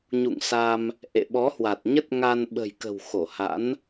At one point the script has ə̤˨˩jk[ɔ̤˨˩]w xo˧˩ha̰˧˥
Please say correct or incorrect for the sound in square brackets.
incorrect